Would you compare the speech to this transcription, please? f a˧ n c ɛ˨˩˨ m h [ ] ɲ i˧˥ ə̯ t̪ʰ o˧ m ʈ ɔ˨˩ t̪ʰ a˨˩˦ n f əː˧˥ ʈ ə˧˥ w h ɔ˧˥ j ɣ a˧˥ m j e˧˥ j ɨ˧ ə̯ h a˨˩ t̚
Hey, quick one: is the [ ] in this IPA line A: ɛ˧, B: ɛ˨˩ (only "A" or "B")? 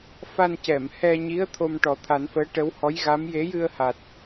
A